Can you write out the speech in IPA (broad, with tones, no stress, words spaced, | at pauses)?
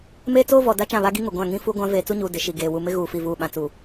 meː˦t͡soː˦vɔ˨ da˦t͡ʃã˦˨βa˦ɡi˦ ŋʊ˨ɡʷã˦˨ ŋĩ˦fu˦ɡʷã˦ veː˨t͡su˦ɲuː˨ dɪ˨ʃi˨ ɡeː˨ wu˨ mɪ˦ ɣuː˨fi˨vuː˨ ɓã˨t͡suː˨